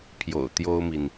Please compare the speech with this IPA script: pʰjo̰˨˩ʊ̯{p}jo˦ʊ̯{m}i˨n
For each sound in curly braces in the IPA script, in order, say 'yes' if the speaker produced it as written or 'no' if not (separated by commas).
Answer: no, yes